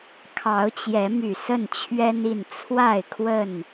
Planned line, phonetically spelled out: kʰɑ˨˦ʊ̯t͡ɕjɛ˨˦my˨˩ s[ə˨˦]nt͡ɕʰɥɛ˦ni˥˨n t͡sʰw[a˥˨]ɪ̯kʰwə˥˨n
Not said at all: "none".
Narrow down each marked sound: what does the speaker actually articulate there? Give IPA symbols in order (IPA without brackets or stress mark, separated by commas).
ə˥˨, a˥˨